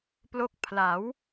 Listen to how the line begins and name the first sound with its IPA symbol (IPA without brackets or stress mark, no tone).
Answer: p